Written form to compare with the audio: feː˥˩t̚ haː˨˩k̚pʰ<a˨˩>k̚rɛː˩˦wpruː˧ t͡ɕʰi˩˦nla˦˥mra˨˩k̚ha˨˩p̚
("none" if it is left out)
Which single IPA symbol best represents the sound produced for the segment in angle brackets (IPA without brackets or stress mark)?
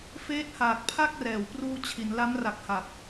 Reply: a˥˩